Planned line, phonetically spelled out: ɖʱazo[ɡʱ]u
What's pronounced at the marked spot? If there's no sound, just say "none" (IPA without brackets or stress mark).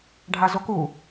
k